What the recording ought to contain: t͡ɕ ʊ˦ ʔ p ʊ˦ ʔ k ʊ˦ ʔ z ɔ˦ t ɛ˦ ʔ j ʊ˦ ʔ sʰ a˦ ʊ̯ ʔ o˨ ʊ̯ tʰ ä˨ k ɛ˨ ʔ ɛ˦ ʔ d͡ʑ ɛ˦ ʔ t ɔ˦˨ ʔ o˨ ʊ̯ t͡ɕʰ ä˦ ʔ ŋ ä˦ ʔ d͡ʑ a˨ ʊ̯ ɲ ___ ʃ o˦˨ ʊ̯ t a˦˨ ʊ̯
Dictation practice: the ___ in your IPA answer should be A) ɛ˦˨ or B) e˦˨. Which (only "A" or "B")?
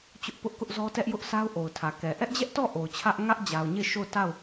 B